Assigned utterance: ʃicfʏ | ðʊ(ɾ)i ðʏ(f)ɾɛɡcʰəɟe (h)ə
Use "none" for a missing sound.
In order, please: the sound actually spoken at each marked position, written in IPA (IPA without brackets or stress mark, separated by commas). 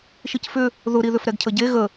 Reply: ɾ, f, ɣ